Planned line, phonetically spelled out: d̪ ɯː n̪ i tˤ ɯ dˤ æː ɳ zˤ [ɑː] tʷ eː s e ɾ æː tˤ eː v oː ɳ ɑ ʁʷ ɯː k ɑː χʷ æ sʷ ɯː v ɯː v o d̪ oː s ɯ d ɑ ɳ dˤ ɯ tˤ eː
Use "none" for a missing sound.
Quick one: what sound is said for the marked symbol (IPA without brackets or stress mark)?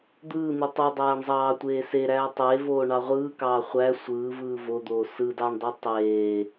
ɑː